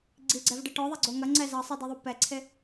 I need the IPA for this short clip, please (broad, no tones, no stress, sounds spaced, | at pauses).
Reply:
ɡ͡ǀ i ɡ͡ǀ ɛ v ɖ ɘ ʈ ɔ ðˤ ɐ ɡ͡ǀ o ŋ ɐ ŋ͡ǀ ɛ z ɐ sˤ i d i ðˤ u p ɛ ǀʰ e